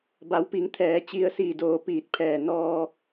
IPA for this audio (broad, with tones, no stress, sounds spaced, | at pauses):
b a˩˧ w p i˩˧ ŋ t̪ʰ ɛː˩ t͡ɕ i˧ ə̯ s iː˧˩ d oː˧˩ p iː˧˩ t̚ pʰ ɛː˧˩ n ɔː˧